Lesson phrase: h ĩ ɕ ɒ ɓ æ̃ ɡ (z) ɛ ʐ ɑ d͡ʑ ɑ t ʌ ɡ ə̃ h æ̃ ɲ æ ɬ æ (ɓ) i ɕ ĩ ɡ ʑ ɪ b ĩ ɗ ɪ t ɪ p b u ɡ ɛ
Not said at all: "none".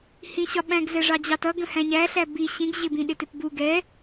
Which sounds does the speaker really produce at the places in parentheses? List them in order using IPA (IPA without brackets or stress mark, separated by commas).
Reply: z, b